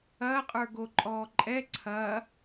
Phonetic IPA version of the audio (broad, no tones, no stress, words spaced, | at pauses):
ɐ qʼə˞ɡoǃʼɔːǃʼɛ ǀʰɐ